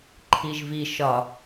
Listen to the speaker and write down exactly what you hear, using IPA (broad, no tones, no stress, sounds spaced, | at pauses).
ǃʰ i ʒ v i ʃ ɒ